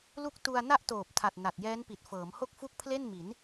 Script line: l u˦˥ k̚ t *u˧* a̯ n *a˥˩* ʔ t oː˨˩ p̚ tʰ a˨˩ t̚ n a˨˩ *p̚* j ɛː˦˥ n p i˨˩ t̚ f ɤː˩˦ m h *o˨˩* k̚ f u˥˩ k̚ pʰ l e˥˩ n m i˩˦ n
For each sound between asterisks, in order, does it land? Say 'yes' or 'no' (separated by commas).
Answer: yes, no, no, no